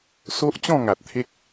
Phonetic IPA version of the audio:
s o˦ ʔ t͡ɕ ɔ̃˥˧ ŋ a˨ t̚ t̪ʰ e˦ k̚

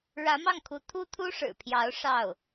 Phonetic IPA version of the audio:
ɻ ä˧˥ m ɑ˥˩ ŋ kʰ u˧˥ t̪ʰ u˥ t̪ʰ u˥ ʂ ɻ̩˨˩ pʰ j ɑ˧˥ ʊ̯ ʂ ɑ˥˩ ʊ̯

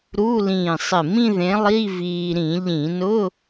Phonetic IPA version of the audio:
ɾ u˧˥˧ l ĩː˧˩ sˤ ɪ˧˩ m ĩ˥˧ ð ẽ˨˥ lˠ i˧˥˧ v iː˧ ɾ ĩ˧˩˧ ʎ ĩ˧˩˧ n ʊ˧˥˧

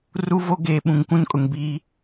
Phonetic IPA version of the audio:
r u˦ v o˦ ɡ eː˨ ɓ ũ˨ ŋ k ũ˦ n kʼ ʊ˨ ŋ b iː˦

